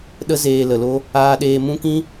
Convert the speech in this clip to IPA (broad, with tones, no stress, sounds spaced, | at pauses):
ɗ ə˦ z eː˧ l ə˨ l o˧ | aː˧ ɗ eː˧ m ũ˦ k ĩ˦